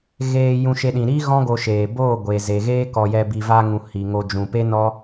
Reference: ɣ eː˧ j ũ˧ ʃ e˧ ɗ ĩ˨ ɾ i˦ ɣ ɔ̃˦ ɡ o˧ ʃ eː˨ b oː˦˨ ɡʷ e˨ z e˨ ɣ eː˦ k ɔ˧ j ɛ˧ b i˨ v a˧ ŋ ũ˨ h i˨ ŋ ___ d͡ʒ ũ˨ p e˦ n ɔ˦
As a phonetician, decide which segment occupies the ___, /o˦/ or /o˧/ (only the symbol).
o˧